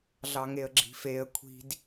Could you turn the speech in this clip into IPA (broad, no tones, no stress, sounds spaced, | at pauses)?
ɮ ɑ ŋ e ə̯ ɡ͡ǁ i̤ f e ə̯ kʷʰ i̤ d